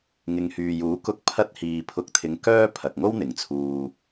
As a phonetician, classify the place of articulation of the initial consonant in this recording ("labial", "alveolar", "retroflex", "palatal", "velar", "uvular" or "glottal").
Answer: velar